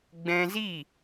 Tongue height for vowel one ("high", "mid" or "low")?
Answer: mid